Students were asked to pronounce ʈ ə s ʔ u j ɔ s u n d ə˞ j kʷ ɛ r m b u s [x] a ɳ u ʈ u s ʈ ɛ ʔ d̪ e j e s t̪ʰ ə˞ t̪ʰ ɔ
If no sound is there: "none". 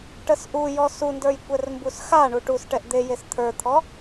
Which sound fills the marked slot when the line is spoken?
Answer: x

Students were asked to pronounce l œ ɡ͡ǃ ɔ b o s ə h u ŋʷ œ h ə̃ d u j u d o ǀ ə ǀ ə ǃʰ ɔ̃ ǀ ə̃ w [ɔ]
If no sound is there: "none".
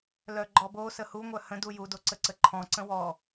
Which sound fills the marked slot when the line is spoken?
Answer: ɔ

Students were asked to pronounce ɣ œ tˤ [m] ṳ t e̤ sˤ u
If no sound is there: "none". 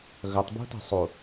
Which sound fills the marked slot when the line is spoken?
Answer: b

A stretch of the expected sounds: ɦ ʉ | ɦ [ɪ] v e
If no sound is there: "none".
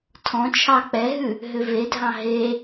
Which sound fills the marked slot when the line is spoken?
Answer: ʏ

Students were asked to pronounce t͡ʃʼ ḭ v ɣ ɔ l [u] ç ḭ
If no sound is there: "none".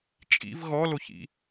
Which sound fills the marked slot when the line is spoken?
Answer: o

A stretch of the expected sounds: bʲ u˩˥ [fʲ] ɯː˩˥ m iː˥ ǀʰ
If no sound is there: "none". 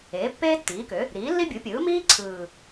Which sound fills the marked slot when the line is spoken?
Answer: pʲ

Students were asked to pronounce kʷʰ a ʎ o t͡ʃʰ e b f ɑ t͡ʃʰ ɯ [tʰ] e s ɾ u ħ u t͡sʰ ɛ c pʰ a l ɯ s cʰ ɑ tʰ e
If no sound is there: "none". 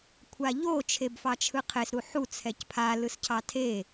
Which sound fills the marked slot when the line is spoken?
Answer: qʰ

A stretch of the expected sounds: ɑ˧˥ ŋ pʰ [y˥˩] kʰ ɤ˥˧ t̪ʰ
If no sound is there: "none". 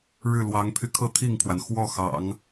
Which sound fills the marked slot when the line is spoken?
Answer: y˧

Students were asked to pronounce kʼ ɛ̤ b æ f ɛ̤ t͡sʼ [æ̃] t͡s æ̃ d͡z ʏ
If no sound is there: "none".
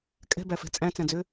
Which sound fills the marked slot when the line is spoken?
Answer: æ̃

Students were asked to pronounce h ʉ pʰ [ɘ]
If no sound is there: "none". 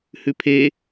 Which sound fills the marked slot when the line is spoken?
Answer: e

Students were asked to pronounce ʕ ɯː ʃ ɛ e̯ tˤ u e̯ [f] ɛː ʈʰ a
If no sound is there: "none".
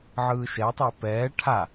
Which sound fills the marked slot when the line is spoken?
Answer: p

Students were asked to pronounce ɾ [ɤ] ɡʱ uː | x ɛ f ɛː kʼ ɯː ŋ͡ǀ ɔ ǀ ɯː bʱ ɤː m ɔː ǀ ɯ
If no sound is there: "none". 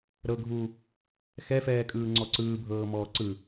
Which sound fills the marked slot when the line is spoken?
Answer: ɤ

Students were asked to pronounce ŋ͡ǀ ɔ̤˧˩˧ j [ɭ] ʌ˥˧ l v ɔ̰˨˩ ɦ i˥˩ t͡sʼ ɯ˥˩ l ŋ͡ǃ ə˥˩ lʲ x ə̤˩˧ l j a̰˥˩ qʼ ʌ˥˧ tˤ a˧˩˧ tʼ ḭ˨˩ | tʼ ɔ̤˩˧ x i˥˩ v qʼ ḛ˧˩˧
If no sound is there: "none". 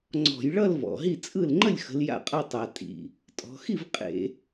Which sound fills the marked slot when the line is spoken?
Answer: ɭ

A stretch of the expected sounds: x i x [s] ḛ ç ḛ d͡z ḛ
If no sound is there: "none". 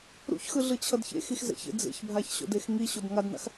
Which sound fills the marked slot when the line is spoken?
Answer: z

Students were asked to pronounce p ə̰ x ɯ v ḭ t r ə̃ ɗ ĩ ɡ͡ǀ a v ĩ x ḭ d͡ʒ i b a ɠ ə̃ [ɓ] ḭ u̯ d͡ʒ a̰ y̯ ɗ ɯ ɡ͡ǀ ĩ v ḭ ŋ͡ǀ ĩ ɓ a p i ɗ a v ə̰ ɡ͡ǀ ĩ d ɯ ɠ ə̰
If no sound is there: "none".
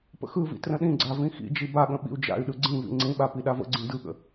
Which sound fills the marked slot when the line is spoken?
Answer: ɓ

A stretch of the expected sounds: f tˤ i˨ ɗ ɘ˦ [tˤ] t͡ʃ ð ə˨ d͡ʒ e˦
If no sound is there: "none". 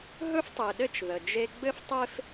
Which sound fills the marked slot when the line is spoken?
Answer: none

